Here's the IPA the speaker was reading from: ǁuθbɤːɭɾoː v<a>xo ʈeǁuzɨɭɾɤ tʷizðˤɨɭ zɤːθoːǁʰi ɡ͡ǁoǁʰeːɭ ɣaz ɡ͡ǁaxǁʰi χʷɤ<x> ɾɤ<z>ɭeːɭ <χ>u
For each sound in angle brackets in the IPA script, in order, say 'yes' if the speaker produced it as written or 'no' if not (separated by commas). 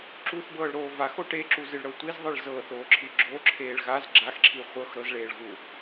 yes, yes, yes, no